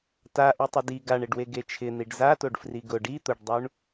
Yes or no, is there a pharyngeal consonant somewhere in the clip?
no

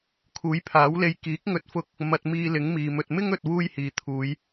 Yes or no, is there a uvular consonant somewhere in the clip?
no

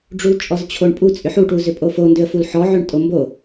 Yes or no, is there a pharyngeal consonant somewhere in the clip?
yes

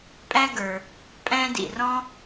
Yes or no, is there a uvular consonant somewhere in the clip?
no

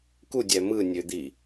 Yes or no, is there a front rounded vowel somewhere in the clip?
yes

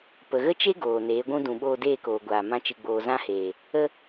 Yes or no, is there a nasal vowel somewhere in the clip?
yes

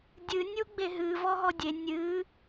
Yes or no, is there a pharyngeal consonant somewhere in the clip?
no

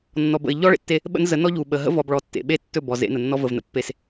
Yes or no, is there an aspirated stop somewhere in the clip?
no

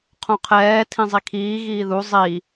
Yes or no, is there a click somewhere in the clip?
no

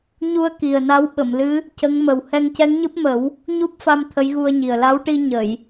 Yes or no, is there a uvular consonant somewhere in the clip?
no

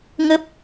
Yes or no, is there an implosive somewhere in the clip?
no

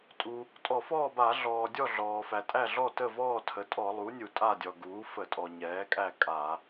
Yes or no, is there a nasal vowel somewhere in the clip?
no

